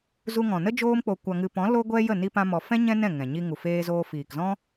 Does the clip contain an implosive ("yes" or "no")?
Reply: no